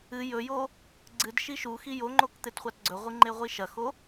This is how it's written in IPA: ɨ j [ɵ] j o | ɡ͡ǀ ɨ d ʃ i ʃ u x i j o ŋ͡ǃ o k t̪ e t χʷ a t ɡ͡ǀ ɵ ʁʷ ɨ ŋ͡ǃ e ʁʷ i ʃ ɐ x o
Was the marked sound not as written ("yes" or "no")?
no